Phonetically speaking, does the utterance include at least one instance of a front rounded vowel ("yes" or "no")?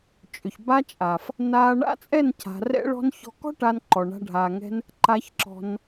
yes